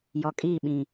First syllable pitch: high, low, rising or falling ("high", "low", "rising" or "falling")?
low